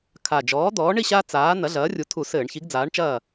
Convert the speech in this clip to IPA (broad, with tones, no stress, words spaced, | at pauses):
kʰa˨˩ d͡ʒɔː˨˥d̪ɔː˨˥ ɳi˥˨ɕaː˦ t͡saː˨˥ n̪ɐ˨˥ɮɐː˨˥rʲu˨˥ tʰu˧˩˧ sɘː˧˩˧ɳçi˨˥ɡd͡zaː˨˥ɳt͡ʃɐː˥˨